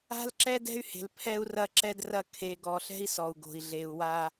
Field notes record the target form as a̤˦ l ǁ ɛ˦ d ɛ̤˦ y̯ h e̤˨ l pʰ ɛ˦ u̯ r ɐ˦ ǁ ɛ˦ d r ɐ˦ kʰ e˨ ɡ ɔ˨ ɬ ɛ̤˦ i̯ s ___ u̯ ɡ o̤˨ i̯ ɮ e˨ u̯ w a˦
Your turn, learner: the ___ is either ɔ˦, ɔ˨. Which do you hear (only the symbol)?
ɔ˨